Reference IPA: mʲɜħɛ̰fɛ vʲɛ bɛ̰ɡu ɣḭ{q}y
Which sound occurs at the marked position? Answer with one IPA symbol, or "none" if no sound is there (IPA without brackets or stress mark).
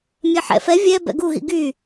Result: ɡ